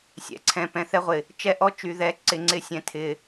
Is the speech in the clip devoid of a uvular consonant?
no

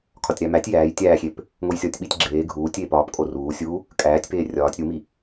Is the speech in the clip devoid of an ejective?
no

